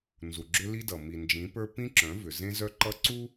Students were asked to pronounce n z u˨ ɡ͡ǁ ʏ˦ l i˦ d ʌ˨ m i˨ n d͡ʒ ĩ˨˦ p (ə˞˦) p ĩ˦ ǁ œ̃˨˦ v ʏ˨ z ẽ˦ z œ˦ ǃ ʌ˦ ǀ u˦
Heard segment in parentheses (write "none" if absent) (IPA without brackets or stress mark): ə˞˦